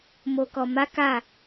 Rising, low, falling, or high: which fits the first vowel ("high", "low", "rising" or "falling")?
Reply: low